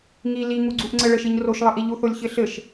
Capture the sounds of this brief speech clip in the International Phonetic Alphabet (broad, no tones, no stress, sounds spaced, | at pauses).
ŋ i l i ŋ u ɡ͡ǀ u ʔ ŋ͡ǀ ɘ ɭ ɘ ʃ i ɲ r o ʃ lˠ ɘ ʔ i ʎ u θ o lʲ ç ɘ ɬ ɘ ʃ